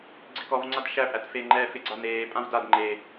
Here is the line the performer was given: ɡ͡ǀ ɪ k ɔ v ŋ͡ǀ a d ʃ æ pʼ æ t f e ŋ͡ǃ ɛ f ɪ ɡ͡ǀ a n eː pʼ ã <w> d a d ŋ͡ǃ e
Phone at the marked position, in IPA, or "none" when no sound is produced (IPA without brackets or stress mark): v